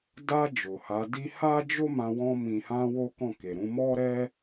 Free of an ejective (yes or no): yes